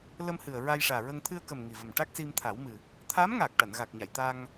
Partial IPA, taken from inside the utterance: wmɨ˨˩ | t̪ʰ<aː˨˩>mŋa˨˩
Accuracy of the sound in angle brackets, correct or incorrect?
incorrect